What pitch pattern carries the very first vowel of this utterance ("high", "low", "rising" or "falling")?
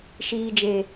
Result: low